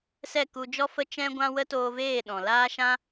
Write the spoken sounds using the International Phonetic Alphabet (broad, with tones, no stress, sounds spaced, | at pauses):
s ɛ˦˨ k u˧ d͡ʒ ɔ˦ f ə˦ t͡ʃ ɛ̃˦ ɡʷ ã˦ w ə˦ t oː˧ v eː˦˨ ɗ ɔ̃˨ l aː˦ ʃ ã˦